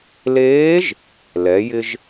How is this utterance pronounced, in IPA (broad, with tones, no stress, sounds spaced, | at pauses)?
l eː˧˥ ʒ | l ɛ˩˧ j ɪ˧ ʒ